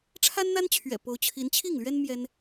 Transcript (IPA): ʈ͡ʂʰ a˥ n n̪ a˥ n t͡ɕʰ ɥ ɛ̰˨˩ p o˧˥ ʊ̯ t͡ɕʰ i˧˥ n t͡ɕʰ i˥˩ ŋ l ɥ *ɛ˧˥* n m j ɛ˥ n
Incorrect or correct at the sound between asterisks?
incorrect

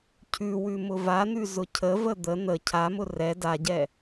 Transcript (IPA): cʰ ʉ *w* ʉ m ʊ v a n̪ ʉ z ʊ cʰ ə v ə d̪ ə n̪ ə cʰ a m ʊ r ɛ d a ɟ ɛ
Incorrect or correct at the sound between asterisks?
correct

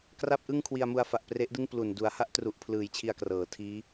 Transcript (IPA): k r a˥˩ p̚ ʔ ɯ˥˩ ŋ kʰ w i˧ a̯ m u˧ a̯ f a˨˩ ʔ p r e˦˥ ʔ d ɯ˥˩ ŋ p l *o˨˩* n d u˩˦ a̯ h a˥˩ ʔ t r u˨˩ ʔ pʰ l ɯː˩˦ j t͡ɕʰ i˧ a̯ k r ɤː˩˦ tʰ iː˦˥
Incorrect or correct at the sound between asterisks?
incorrect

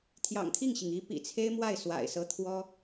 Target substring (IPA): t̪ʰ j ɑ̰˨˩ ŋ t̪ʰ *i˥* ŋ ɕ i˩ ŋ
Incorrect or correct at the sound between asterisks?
incorrect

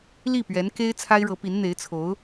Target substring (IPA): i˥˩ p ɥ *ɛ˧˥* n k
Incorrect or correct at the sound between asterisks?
correct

